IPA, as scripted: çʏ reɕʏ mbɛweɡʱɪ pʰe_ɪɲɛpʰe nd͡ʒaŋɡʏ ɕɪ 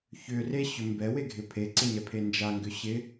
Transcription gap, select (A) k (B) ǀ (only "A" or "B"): B